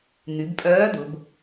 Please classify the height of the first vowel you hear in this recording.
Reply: high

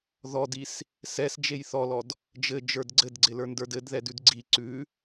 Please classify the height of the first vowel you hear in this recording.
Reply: mid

